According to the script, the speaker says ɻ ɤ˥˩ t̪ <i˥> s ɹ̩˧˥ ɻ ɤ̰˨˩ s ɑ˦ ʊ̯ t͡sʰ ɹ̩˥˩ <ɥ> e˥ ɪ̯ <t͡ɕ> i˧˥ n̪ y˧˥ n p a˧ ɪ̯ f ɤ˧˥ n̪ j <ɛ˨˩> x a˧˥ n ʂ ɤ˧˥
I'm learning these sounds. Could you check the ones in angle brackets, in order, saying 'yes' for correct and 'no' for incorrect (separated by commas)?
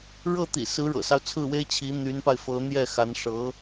no, no, no, no